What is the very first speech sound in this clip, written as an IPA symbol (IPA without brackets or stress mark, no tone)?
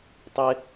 tˤ